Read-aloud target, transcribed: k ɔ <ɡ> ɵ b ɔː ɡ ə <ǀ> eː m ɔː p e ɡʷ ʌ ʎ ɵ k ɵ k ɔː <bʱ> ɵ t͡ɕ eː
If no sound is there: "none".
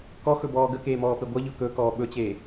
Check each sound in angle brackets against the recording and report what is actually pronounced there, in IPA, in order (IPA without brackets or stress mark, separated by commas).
x, k, ɓ